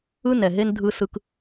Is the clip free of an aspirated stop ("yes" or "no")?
yes